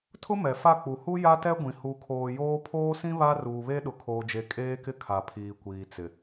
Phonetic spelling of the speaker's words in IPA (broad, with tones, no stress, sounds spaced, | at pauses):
tʰ ʊ˦ m ɛ˨ f a˦˨ k͡p u˨ h u˦ j a˦ t ɛ˦ ɡʷ ĩ˨ h u˨ kʰ oː˨ j oː˦ pʰ oː˦ s ĩ˦ β a˦ r uː˨ β e˦ ɗ ʊ˨ kʰ oː˨ d͡ʒ e˨ kʼ eː˦ k ɪ˦ kʰ a˨ pʰ iː˨ kʷ iː˨ t͡s ɪ˨